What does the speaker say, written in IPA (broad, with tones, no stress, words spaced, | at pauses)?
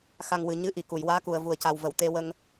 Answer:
xa˨˩ŋ wɨ˨˩˨ ɲɨ˧ ʔi˨˩˨ku˨˩˨jwaː˧˥ku˨˩ə̯ vu˨˩ə̯ca˨˩wvə˨˩˨w t̪e˧wə˧ŋ